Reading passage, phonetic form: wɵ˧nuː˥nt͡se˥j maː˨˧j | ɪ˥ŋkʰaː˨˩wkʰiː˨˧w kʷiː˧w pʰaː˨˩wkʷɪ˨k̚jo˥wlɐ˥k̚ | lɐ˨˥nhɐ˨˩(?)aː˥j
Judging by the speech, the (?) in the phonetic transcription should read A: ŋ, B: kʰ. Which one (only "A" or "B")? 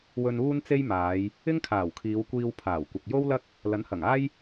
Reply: A